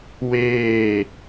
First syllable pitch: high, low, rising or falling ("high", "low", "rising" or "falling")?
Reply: falling